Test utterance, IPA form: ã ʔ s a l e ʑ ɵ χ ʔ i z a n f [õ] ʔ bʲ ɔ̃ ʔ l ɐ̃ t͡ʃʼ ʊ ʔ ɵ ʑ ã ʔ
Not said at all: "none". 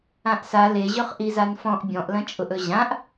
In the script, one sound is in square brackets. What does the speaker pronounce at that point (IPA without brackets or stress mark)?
ɔ̃